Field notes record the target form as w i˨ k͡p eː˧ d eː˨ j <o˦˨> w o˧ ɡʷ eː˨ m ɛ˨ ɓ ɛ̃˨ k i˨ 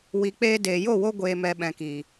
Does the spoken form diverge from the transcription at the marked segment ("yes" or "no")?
no